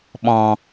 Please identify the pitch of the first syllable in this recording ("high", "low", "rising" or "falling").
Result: low